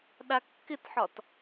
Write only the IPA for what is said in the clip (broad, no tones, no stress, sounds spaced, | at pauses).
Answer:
ɗ a kː ɪ t ħ ɒ t